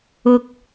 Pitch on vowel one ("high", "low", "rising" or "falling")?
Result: high